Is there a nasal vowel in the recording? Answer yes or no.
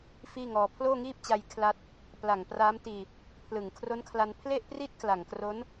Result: no